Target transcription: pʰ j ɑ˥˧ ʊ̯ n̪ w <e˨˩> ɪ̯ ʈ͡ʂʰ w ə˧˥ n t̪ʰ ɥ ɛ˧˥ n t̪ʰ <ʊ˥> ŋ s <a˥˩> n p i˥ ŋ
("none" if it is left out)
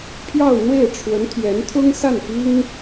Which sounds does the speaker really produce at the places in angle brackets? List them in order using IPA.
e˥˩, ʊ˥, a˥˩

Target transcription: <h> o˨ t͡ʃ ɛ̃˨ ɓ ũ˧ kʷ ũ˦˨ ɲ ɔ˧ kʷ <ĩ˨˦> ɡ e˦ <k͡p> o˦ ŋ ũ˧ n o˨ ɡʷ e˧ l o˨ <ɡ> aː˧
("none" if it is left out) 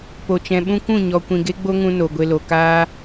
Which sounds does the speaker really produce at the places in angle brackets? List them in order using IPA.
p, ĩ˧, ɡ͡b, k

